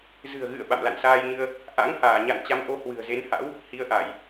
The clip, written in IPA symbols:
zɨ̤˨˩ə̯ɣɨ̰˧˨ə̯ ɓa̰˧˨mla̰˧˨nsaː˧jɲɨ˧ə̯ | ʔa̰˧˥ŋhaː˧˩ɲa̰˧˨n t͡ɕa˨˦mʔo˧ hwɨ̤˨˩ə̯ze˨˦nha̰˧˥w | hi˨˦ə̯ʔa˧˩˨j

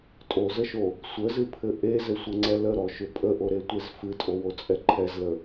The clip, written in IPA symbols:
tʼozəʃo | sʷəzɨpʰɘ ʔezɘsʷɘŋ͡ǀɛ ləɾɔʃʏ pʼəʔoɾetʷez fɨtʼowot͡sʼɛ ǃʰɛzlə

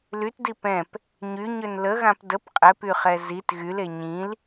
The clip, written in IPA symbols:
lytdi pɛ̃p | ɲyɲøn ləɣãp dəp qʼɛpyχɛ zit ɣyle ɲĩl

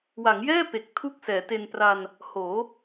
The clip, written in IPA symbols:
wa˩˦ŋjɛː˥˩ pe˨˩k̚ tʰu˥˩k̚sɛː˩˦ te˧npra˧n | hoː˩˦

